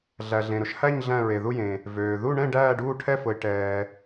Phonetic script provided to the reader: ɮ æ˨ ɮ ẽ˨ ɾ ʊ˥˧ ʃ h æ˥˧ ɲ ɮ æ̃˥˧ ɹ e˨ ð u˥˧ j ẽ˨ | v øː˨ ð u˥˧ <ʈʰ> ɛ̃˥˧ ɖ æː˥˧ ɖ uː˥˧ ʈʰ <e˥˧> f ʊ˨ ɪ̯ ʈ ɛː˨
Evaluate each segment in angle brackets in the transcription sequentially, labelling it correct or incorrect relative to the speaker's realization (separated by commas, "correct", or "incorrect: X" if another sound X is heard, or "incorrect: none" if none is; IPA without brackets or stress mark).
incorrect: ɳ, incorrect: ɛ˥˧